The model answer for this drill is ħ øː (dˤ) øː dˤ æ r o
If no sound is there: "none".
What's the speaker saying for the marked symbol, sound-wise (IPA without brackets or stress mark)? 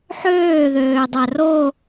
ð